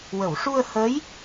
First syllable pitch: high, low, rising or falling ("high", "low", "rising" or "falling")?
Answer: low